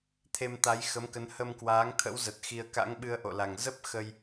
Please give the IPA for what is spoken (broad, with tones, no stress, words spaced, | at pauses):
t̪ʰe˧mt̪a˨˦j xə˨˦mkə˨˦n hə˧mkwaː˨˦ŋt̪ʰə̰˧˥wzə˨˩t̚ xi˧ə̯ ka̰˧˥ŋɓɨ˧ə̯ ʔo̰˧˨la˨˩ŋ zə˦˥p̚ xə˧j